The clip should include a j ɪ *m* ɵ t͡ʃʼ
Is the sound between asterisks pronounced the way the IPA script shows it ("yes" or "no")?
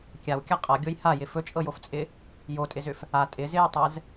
no